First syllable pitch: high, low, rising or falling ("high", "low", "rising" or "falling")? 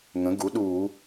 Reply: rising